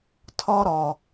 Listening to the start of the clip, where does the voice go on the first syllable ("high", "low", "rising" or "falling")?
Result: high